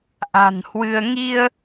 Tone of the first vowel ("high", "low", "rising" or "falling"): low